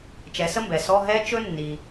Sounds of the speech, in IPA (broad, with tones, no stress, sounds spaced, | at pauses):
t͡ʃ ɛ˩˥ s ə˥ m b ɛ˩ s ɔ˧˥˧ ɦ ɛ˥ t͡ʃ ɵ˥ nː i˩